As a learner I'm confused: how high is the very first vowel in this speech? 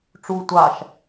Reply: high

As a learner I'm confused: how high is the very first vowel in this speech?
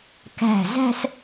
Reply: low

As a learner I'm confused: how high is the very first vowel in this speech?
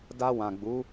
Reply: low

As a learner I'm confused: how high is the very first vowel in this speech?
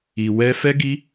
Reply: high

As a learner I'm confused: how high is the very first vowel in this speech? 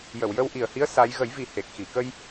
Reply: mid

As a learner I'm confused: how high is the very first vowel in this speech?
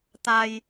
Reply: low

